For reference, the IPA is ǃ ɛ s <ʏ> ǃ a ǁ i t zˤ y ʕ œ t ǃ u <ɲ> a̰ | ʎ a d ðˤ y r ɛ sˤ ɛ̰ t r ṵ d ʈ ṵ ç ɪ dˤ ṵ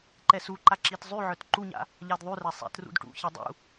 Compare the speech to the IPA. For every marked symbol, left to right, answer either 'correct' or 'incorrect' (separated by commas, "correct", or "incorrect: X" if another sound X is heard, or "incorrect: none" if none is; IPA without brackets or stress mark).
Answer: incorrect: u, correct